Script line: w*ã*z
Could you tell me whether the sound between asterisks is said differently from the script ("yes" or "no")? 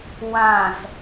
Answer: no